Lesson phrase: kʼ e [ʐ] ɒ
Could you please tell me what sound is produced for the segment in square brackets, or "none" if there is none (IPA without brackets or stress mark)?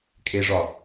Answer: ʐ